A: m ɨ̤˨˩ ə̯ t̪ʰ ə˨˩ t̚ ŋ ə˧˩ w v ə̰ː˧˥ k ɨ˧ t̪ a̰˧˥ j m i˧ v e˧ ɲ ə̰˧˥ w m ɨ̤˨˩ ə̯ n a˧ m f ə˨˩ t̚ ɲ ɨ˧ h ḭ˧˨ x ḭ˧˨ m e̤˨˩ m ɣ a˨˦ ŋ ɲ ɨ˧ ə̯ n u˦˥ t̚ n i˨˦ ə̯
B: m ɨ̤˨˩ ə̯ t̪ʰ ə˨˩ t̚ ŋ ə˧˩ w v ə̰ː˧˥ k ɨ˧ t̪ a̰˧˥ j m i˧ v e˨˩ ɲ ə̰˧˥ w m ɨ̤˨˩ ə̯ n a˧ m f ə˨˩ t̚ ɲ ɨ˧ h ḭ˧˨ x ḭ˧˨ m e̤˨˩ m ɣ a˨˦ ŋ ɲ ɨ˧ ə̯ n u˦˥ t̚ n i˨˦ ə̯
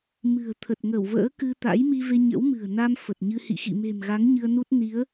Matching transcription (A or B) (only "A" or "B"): A